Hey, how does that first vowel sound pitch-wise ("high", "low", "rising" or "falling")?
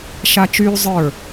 high